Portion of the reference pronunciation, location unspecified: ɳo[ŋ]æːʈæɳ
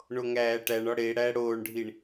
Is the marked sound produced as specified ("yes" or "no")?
yes